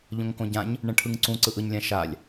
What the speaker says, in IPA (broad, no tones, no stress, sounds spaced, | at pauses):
ʎ õ ŋ k õ ɟ ã ɲ | ɳ ɛ̃ ʈʰ ɯ ŋ ǀ ũ ǀ ɯ ʔ ɯ ɲ lʲ ã ʃ a lʲ